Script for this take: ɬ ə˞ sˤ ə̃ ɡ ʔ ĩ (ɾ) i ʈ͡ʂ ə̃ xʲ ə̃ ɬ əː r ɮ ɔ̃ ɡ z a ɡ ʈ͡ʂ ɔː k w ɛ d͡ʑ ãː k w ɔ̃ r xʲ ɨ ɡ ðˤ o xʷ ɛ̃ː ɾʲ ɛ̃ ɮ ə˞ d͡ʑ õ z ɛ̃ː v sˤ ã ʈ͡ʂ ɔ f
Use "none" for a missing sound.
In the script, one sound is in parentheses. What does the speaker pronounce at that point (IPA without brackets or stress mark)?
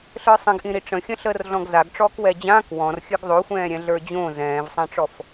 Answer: ɾ